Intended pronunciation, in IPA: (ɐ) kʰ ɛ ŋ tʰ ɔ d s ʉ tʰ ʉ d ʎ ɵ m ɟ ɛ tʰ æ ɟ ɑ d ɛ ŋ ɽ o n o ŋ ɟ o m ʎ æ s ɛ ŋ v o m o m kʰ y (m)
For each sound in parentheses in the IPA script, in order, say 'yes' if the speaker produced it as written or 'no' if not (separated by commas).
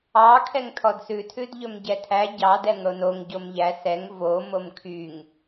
no, no